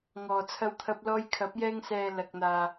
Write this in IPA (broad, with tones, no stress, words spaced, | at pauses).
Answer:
ŋɔː˨t͡sʰɐ˧wt̪ʰɐ˧p̚lɔː˧j kʰɐ˨˥p̚jɛː˧ŋsɛː˨ lɐ˨k̚n̪aː˨